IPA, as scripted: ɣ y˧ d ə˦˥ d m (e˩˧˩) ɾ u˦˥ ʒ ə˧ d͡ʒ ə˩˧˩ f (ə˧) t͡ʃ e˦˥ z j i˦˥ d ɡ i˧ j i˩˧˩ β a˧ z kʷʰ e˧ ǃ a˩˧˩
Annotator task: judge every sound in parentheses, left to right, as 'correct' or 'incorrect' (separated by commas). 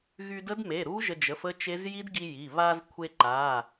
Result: correct, incorrect